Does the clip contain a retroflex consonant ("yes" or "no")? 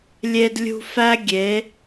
no